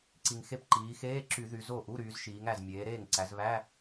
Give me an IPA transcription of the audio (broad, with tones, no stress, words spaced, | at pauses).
ǀi˨˩ŋxe˥˩pǃiː˩˧ xeː˧˥˧ǁy˧˩˧ ðy˩˧zo˥˩ ʔu˧˥˧ɾyː˩˧zʃiː˩˧ŋæ˨˩z mʲeː˩˧ɾeː˥˩ŋǀæ˩˧z βæ˧˥˧